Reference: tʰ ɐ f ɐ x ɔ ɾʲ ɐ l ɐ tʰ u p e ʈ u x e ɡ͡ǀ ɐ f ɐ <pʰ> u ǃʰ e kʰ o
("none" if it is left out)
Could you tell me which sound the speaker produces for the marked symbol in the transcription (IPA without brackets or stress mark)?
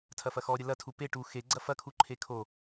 kʰ